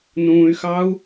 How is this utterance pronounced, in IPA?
n ũː y̯ x ɑ u̯

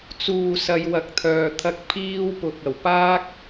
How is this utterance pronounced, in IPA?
t͡s uː˨ s ɐ˨˧ j w ɐ˨ k̚ t̪ʰ œː˨ t̪ʰ ɐ˧ k̚ pʰ iː˧ w p ʊ˨ k̚ ɐ˨˩ w p aː˥ k̚

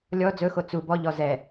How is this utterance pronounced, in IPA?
lʲ ɔ d͡z ɵ x o t͡s u b ɔ ʎ ɔ z ɛ

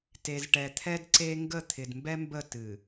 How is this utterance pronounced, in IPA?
t e˨ z ʈ ɛ˨ t̪ʰ ɛ˦ d ǀ e˦ ŋ ɡ ə˦˨ t̪ʰ ɪ˨ d m b ɛ˦ m b ə˦˨ t ɨ˨

